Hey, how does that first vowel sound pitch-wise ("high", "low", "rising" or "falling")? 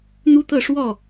high